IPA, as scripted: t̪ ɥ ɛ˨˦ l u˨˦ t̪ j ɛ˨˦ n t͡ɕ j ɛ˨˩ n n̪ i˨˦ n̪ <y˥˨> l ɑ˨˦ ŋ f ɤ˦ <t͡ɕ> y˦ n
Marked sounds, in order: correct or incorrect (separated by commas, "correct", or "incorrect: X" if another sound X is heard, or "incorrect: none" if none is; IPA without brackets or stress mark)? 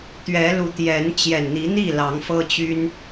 incorrect: i˥˨, correct